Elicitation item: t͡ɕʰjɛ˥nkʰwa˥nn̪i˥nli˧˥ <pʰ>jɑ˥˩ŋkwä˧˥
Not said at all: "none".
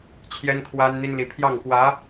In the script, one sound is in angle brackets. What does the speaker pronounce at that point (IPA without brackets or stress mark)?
pʰ